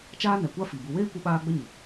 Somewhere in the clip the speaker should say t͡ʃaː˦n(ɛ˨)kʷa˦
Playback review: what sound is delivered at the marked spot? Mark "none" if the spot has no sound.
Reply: ɛ˨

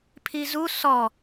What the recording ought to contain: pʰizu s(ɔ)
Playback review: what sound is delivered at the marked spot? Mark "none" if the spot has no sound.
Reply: ɔ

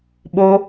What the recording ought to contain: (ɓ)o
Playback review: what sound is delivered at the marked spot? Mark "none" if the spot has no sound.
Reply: ɓ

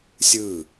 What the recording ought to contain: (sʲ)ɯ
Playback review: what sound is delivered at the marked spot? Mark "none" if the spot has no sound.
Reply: sʲ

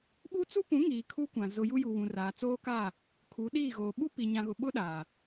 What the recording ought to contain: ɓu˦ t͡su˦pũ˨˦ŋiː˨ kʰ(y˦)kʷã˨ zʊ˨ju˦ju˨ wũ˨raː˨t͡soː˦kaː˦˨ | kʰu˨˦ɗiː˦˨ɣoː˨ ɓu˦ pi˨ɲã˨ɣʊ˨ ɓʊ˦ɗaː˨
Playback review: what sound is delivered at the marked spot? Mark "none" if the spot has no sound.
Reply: u˦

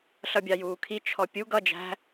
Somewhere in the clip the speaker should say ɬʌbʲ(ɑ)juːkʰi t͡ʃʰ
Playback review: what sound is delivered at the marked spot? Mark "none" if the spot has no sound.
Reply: ɑ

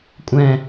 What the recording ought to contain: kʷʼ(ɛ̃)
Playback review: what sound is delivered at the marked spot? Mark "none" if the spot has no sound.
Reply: ɛ̃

